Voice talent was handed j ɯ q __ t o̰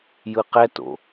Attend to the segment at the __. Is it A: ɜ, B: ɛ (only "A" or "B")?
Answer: B